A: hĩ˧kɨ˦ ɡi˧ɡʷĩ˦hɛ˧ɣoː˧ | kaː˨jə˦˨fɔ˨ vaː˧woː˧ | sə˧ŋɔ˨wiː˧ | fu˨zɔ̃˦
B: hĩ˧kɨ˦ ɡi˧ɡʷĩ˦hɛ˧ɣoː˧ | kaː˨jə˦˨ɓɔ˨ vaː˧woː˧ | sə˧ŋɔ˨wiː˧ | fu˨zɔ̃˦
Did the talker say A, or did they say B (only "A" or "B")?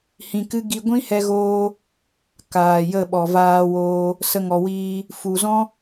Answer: B